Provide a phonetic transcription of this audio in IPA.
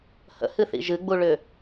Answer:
h ə̰ h ɨ θ ḭ ʒ ɨ ɡ͡b u ɭ ʏ

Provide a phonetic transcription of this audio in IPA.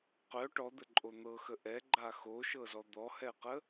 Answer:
q œ ʈ ɔ d̪ ə ǃʼ o n̪ ɤ x ə ʔ ɛ ɡ͡ǃ a x o ʃ ɤ z ɔ d̪ ɔ h ɛ q ə

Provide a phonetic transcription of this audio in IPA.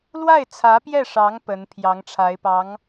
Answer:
l w a˥˩ ɪ̯ t͡sʰ ä˧˥ p j ɛ˥˩ ʂ ɑ˧˥ ŋ p ə˧˥ n pʰ j ɑ˧˥ ŋ ʈ͡ʂʰ a˧˥ ɪ̯ p ɑ˧˥ ŋ

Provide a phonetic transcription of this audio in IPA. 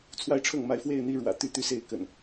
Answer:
t͡sʰ w a˥˨ ɪ̯ ʈ͡ʂʰ ɤ˥˨ ŋ m a˥˨ ɪ̯ f w e˥˨ ɪ̯ n̪ i˥˨ ɻ w ä̰˨˩ t̪ y˦ t̪ y˦ s e˥˨ ɪ̯ k ə̰˨˩ n

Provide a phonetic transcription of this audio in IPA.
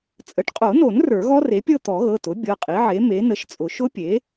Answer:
t͡sʼ ə˩˥ ʈ qʼ o˨˩˦ n o˨˩˦ n r ə˞˨˩˦ ɣ ɔ˦˥ r e˩˥ pʲ ɤ˥˧ t̪ ɔ˨˩˦ ɣ ɤ˩˧˩ t ʊ˩˥ bʲ ɤ˩˧˩ qʼ i˩˥ ʕ e˩˥ m e˩˥ n ə˩˥ ʃ t͡sʼ ʊ˨˩˦ ʃ ʊ˦˥ pʲ e˩˥

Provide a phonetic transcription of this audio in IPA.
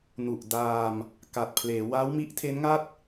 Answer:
n u˨˩ ʔ d aː˧ m | k a˨˩ t̚ pʰ l eː˩˦ w a˦˥ w m i˦˥ ʔ tʰ e˦˥ n ŋ a˥˩ t̚

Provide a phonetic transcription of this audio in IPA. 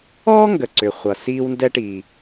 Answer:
ɔː˥ ŋ ɡ ə˩ ǀ ʏ˩ χʷ ʌ˩ s iː˧ w n d ɛ˧ ʈ iː˩

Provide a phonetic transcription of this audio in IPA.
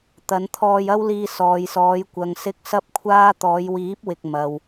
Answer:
t̪ ɐ˨˧ n t̪ʰ ɔː˧ j ɐ˥ w l iː˧ s ɔː˨ j s ɔː˨˧ j kʷ ɐ˨ ŋ s ɪ˧ k̚ s ɐ˥ p̚ kʷʰ aː˥ t̪ ɔː˨˧ j w iː˨˥ p̚ w ɪ˨ k̚ m ɐ˨ w

